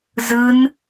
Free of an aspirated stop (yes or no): yes